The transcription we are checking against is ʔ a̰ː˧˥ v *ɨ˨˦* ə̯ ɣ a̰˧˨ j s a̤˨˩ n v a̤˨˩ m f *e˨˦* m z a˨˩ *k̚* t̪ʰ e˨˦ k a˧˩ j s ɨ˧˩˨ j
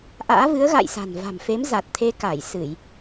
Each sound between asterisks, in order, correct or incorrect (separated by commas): correct, correct, incorrect